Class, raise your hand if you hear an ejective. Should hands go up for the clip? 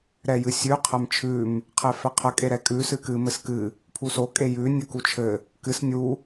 yes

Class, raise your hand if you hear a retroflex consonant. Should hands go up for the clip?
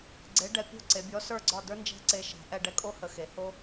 yes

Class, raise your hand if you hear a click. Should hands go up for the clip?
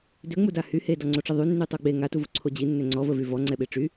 yes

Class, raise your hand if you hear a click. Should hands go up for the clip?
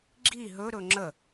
yes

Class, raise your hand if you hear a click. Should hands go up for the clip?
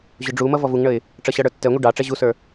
no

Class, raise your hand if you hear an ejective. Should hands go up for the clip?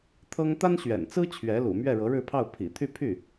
no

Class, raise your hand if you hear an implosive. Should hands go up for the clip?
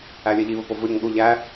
yes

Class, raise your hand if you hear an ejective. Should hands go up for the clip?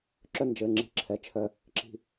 no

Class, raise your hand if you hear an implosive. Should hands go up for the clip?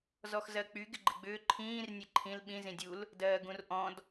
yes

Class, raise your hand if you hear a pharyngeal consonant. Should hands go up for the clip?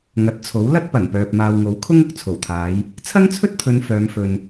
no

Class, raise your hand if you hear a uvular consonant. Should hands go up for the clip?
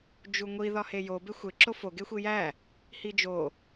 no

